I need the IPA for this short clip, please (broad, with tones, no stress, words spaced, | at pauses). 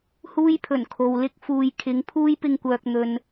huː˥jpʰɵ˨˩nkʰo˨w lɪ˥k̚ fuː˨j kʰɪ˨˥ŋpʰuː˥jpɪ˧ŋkʷœː˨k̚ n̪ɵ˨n